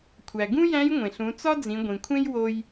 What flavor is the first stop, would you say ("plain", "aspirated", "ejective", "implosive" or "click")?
aspirated